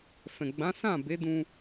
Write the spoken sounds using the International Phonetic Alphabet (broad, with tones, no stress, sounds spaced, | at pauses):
f ɛ̃˨ ɡ͡b ã˨˦ s ã˦˨ b e˨˦ d ũ˧